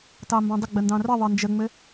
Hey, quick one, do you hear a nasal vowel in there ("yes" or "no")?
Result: yes